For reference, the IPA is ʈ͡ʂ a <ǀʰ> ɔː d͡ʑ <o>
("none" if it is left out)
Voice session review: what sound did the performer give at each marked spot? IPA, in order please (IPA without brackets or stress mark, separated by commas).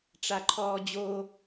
ǃʰ, o